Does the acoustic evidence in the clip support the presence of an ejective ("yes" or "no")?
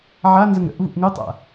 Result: no